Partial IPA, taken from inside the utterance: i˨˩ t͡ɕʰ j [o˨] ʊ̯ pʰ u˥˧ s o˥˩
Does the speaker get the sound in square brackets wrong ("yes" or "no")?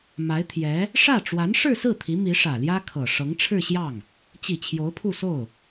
yes